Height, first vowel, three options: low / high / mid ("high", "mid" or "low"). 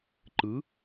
high